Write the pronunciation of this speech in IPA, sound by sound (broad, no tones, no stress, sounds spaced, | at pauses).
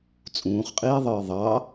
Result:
t͡sʼ ũː χ qʼ iː ðˤ ɯː ðˤ ɑ